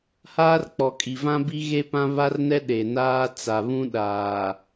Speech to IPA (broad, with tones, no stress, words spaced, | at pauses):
haː˦rk͡pɔ˨kʼi˨vã˦ bi˦ɣe˦pã˦ βa˦rnɛ˦ ɗe˨naː˦ t͡sa˨ βũ˦ ɗaː˨